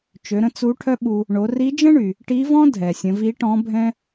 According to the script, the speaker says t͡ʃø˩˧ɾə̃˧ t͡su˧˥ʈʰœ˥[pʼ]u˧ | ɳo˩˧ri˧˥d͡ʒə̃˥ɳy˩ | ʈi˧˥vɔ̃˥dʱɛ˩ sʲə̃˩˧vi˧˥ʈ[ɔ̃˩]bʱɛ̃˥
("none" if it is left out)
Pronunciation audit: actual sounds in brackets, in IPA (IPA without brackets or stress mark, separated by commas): ɓ, ɔ̃˧˥